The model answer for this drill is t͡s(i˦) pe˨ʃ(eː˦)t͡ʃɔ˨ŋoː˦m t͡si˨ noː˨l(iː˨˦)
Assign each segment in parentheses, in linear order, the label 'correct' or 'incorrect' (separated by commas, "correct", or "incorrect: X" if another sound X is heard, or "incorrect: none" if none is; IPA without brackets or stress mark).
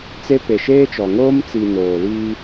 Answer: incorrect: e˦, correct, incorrect: iː˦